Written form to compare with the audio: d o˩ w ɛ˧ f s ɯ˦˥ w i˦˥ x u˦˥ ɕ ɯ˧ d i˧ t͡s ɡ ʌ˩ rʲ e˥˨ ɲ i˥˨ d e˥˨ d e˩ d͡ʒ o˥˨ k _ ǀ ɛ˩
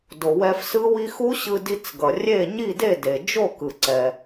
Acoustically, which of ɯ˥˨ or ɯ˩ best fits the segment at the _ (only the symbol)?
ɯ˩